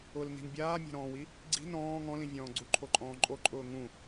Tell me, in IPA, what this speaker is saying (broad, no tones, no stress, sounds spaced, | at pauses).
ʊ l n i̤ n bʲ aː mʲ a̤ ɾ ɔ̃ː w i | ɡ͡ǀ i̤ n ɔ̃ː ŋ ɔ̃ l ĩ vʲ ɔ̃ː ɡ͡ǀ u ǃʰ o ǃʼ ɔ̃ː ǃʼ o ǃʼ ʊː ŋ ũ